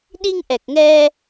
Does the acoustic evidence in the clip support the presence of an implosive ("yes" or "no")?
yes